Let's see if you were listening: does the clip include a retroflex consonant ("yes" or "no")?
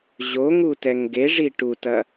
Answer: yes